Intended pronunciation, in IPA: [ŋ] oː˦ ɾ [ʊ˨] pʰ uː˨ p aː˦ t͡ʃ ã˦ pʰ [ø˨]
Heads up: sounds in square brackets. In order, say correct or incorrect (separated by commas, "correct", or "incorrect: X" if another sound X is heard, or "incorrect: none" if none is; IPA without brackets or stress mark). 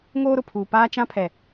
correct, correct, incorrect: ɛ˨